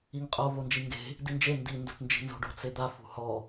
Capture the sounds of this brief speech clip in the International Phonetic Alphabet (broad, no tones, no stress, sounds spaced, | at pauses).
i ŋ qʼ o v o n d͡ʒ i ŋ ɡ e̤ | d i n d͡ʒ e n d i n d o t n d͡ʒ i̤ n z o̤ ɖ o̤ t͡s e d̪ a f ṳ h ɔ